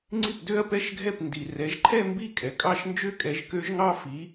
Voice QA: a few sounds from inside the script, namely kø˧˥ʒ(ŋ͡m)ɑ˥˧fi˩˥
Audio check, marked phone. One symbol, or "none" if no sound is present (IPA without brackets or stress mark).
ŋ